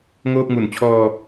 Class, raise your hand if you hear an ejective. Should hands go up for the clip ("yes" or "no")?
no